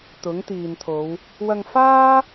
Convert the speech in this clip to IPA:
t̪ ʊ˨˥ ŋ t̪ iː˨ n t̪ʰ o˨˧ w | w ɐ˧ ŋ f aː˥

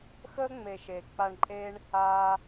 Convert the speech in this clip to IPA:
x əː˦ ŋ͡m e˨ ʃ eː˨ k͡p a˧ ɳ ǃʼ eː˦ ɳ | aː˦

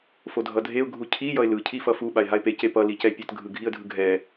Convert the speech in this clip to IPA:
f o dʱ ʌ dʱ e ʊ̯ ɡʱ u cʰ i j ʌ ɪ̯ l ɯ cʰ i f ʌ f u ɓ a ɪ̯ ɦ a ɪ̯ p e c e p ʌ l i c ɛ pʲ ʌ t ɡʱ ɯ ɡʱ i ə̯ dʱ ɯ ɡʱ ɛ

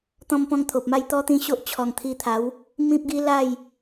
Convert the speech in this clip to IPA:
t̪ ɔ̃˦ m p ɔ̃˦ ŋ t̪ʰ o˨ p̚ m a˥˧ j t̪ ɔ˦ t̪ ĩ˥˧ ɕ o˦ ʔ t͡ɕʰ ɔ˨˩ ŋ t̪ʰ i˧ t̪ʰ a˨˦ w | m ĩ˦ p̚ ɡ i˦ l a˥˧ j

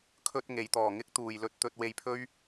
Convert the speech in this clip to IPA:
kʰ ɵ˧ t̚ ŋ e˨˧ j t̪ ɔː˨ ŋ ɪ˥ k̚ t̪ uː˨ j l ɵ˧ t̚ t̪ ɵ˧ t̚ w e˧ j pʰ ɵ˥ ɥ

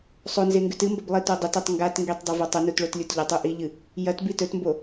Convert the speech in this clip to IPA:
sˤ o n z e ŋ ɡ ʉ t ɨ m b ɐ b lˠ i t o dˤ e t o tˤ ŋ ɡ a t ŋ ɡ i tˤ dˤ ɵ v o tˤ ɵ n u t ɭ o t lʲ u t ʎ ɐ tˤ u ʔ i ʎ ɨ | j ɐ t b i t ɵ t m b o

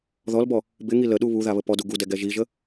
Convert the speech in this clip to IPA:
ð ɔ l b ɔ | b ɪ ŋ i l ə ɗ u β u ð a β ə p ɔ d u ɡ u d ɛ ɡ ɛ ʒ i ʒ ə

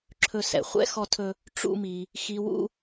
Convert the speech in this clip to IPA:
ǁʰ ɵ˦ s ɛ̰˨ χʷ ɛ̰˦ x ɔ˦ tʰ ɵ˦ | ʈ͡ʂ ṵ˦ m i˧ | x i˧ w ṵ˦

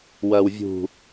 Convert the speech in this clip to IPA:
w ɐː w vʲ ṳ

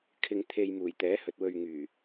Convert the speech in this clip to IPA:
kʰ ɪ˧ ŋ t̪ʰ e˧ j m uː˨˩ j t̪ ɛː˨˥ h ɵ˨ t̚ w ɵ˧ ɥ ŋ yː˨˩

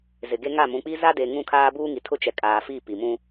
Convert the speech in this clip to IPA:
z ɪ˨ ɡ e˦ ŋ a˦˨ m ũ˨ k͡p i˦ z a˦ d e˨ ŋ ũ˦˨ kʰ aː˦ b uː˦ ŋ i˨ tʰ ʊ˦ t͡ʃ ɛ˨ kʼ aː˨ f i˦˨ p i˨ m ũ˦

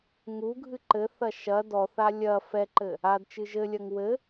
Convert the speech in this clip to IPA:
ŋ u ɡʱ ɨ ǃ ɘ θ ɐ ʃ ɐ d ɔ θ a lʲ ɐ f ɛ ǃ ɘ | a d t͡ʃ ɨ ʒ ɘ lʲ ɐ ŋ w ɘ

